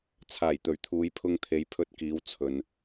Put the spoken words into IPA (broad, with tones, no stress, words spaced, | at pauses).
t͡sʰaː˨˩jt̪ɵ˨˩ɥt̪ʰuː˨˧j pʰʊ˧ŋt̪ʰe˨˧j pʰɵ˧t̚kiː˨˧w t͡sʰɵ˨n